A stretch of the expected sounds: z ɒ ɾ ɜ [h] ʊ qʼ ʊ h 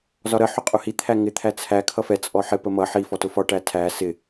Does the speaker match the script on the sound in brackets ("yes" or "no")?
no